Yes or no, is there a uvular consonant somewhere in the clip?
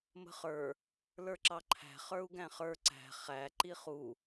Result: yes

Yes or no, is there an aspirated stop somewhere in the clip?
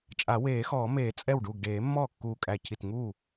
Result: yes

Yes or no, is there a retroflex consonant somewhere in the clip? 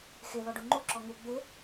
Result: yes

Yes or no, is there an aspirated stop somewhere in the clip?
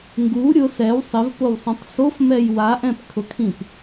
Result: yes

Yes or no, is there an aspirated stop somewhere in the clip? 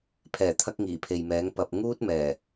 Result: yes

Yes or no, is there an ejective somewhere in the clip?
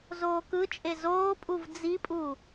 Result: yes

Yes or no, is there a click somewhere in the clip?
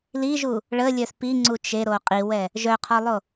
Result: yes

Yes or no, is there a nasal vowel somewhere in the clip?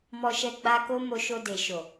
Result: no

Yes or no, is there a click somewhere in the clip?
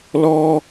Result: no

